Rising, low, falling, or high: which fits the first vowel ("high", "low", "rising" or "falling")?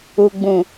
low